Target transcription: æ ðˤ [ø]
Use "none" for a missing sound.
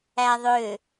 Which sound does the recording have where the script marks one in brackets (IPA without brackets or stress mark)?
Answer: ø